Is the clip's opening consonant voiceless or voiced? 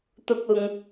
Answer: voiceless